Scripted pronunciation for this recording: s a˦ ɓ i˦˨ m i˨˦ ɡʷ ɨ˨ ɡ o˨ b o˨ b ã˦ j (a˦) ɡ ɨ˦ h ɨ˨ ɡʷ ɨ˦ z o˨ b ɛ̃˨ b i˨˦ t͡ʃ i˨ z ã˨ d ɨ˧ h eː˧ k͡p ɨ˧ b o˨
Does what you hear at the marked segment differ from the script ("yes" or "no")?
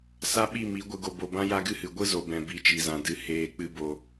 no